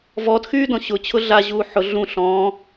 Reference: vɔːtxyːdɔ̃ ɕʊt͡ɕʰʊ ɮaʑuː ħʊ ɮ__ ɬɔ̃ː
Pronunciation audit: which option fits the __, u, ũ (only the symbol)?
ũ